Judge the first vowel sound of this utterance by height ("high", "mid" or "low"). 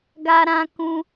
low